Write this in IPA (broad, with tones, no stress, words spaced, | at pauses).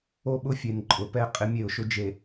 o˦ɓʊ˦fʲe˨n ǃʼʊ˨pɛ˦ qʼɪ˦mʲe˦˨ʊ̯ʃʊ˦ d͡ʒe˨